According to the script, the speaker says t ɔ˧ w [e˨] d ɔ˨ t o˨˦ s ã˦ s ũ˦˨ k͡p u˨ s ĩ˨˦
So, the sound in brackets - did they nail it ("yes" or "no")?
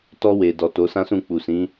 yes